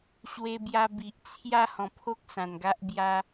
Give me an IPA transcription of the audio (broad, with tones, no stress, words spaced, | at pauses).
ɕwe˧bja˧ bi˨ʔt͡sʰja˦ hɔ̃˨˩pʰo˦k̚ sã˨˩nɡa˦ʔ bja˦